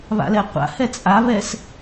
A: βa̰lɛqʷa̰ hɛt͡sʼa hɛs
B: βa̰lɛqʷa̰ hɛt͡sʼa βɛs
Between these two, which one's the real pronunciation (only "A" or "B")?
B